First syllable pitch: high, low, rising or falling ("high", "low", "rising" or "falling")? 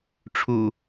low